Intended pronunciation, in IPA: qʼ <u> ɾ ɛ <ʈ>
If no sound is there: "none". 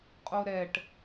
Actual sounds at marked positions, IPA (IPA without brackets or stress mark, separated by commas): o, ʈ